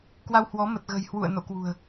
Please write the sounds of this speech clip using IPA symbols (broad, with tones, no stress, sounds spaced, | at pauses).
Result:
k w a˧ w h w ɔ˨˦ m ə˨˩ t̚ ɣ ə̤˨˩ j h w ṵ˧˨ ə̯ n o̰˧˨ k w ṳ˨˩ ə̯